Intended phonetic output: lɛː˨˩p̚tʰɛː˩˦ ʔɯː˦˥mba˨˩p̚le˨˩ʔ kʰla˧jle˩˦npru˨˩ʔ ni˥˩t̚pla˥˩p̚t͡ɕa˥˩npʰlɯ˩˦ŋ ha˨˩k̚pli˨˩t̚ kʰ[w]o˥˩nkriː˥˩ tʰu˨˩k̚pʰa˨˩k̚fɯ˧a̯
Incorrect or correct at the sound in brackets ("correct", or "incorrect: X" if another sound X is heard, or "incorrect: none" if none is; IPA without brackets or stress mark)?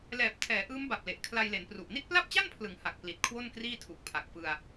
correct